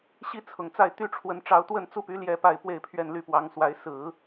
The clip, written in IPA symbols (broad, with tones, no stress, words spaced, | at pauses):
ɕi˥t͡sʰʊ˨˩ŋt͡sa˥˩ɪ̯ t̪y˥ʈ͡ʂʰwə˧˥n ʈ͡ʂɑ˧˥ʊ̯t̪wə˥˧nt͡su˥˩py˧˥ ljɛ˥pa˥˧ɪ̯pwe˥˧ɪ̯pʰɥɛ˥˧n ly˥˩pwɑ˧˥ŋswa˧˥ɪ̯ sɹ̩˨˩˦